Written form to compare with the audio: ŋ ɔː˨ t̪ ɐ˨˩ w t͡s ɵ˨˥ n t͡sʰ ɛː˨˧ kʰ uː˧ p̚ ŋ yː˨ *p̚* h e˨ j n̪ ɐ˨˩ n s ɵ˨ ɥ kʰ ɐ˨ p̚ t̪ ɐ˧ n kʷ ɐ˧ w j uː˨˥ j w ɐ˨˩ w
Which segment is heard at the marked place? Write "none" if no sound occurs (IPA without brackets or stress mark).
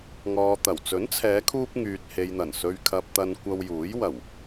t̚